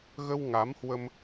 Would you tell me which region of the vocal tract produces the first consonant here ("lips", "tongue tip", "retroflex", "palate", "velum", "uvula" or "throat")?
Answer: velum